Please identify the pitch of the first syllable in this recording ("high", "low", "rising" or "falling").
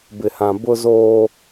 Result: low